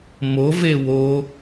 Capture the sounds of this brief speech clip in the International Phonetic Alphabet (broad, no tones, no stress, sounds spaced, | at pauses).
m o v e w o